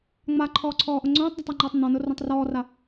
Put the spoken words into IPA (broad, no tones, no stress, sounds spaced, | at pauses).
ŋ͡m a ǃʰ ɔː ǀʰ ɔː ʔ ʊ ŋ͡ǀ õː tˤ d a tˤ a ŋ͡ǃ ɔː tˤ n̪ ɔ̃ n ʊ r õ tˤ r ɔː r a